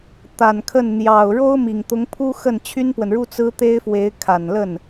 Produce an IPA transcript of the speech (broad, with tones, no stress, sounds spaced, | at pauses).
t̪ a˨˩ n kʰ ə˥˩ n n̪ j ɑ˨˩ ʊ̯ ɻ o˥ ʊ̯ m i˨˩ ŋ t̪ ʊ˧˥ ŋ pʰ u˥ x ə˥˩ n t͡ɕʰ y˥ n p w ə˨ n ɻ u˥ t͡s ɹ̩˥ t̪ e˥ ɪ̯ f w e˧˥ ɪ̯ kʰ a˨˩ n l ə˥˩ n